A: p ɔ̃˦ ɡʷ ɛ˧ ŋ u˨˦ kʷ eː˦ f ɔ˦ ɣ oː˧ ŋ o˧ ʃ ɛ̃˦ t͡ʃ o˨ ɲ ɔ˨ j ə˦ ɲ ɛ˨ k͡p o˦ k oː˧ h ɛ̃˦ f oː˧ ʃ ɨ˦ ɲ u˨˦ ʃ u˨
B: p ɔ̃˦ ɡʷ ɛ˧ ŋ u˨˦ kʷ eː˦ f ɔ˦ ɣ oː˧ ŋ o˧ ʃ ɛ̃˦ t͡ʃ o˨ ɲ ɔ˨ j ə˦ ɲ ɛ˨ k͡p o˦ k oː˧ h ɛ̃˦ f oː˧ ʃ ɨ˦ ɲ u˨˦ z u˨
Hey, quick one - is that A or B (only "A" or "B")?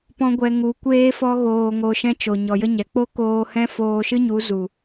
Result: B